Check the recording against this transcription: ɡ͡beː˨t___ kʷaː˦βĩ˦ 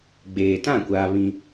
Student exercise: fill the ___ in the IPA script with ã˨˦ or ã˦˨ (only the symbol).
ã˦˨